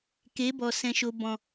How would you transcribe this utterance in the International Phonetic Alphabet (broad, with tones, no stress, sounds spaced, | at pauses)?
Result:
k e˨˦ b ɔ˨ s ɛ̃˨ ʃ o˨ b ɔ̃˨